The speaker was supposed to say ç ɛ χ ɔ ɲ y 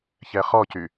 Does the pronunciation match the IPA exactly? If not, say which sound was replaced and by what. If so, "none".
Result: ɲ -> c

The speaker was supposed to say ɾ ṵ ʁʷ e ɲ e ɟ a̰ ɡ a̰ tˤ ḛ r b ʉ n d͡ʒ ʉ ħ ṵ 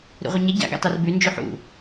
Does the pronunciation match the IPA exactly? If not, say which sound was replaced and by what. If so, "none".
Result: ḛ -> e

